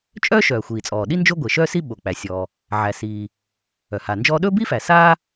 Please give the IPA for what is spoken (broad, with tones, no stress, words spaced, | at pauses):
t͡ʃʼœː˥ʃœː˩ xʷiː˩t͡sʼɔː˩ɗi˥ nd͡ʒo˥ɡʷe˩ʃœː˥si˥ ɓo˩k͡pæ˩sʲɔː˩ | ʕæ˩siː˩ | œ˩ha˩nd͡ʒɔː˥ ɗɵ˥bi˥ fæ˩saː˥